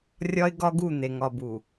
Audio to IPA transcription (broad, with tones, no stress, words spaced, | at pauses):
rʲɒ˦ɪ̯ɡɒ˦ɡu˦˨ n̪e˨ŋɒ˨bu˨